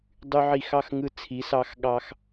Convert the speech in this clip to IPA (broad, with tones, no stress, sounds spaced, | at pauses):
dˤ y˧ ʕ i˧˩ x ɑ˥˧ x ŋ ɯ˧ t͡sʰ i˩˧ s ɑ˧ x ɠ ɑ˧ x